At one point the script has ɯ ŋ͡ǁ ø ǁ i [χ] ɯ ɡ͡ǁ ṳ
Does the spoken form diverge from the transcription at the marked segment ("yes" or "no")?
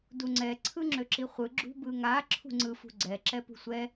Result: yes